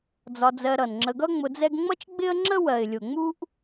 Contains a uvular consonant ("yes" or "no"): no